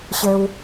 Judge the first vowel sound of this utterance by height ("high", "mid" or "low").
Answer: mid